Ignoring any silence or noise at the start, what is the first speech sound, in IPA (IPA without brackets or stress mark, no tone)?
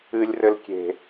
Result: ɨ